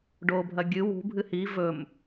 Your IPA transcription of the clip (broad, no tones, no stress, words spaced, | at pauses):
ɖobʱɐ ɡʲɨ wṳbʱɨ hi vɵm